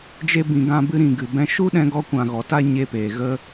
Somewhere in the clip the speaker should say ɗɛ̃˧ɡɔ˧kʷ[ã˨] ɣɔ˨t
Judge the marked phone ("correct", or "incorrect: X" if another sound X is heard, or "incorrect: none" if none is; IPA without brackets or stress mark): correct